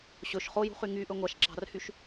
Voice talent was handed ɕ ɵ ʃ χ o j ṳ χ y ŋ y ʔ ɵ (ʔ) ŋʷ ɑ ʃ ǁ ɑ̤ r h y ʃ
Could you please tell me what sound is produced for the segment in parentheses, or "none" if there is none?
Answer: none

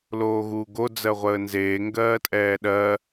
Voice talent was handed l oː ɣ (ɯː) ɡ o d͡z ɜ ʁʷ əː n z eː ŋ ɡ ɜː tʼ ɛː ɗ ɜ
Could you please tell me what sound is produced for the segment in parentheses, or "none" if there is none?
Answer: uː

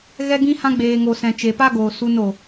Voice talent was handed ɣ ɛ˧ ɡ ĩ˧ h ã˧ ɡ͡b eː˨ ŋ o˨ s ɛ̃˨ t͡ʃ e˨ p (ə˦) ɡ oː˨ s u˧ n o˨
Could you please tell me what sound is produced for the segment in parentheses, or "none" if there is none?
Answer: a˦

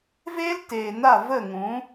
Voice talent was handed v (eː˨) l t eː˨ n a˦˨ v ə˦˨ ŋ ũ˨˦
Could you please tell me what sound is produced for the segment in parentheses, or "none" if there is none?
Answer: eː˦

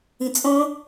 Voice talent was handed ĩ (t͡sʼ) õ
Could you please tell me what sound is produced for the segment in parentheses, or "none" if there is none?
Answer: t͡sʼ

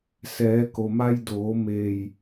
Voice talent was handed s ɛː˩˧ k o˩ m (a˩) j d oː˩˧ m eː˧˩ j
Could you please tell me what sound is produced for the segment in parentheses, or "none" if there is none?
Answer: a˧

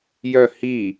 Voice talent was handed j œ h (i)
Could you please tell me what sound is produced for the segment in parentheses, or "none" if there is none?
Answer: i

